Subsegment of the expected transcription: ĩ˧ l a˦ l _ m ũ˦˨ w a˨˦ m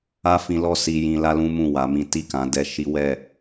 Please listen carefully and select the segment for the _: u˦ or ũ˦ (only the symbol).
ũ˦